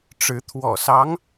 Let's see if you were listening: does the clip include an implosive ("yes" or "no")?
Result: no